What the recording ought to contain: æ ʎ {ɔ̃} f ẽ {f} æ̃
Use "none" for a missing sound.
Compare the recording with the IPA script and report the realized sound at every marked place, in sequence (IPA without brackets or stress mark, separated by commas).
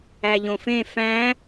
õ, f